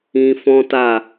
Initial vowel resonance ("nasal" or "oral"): nasal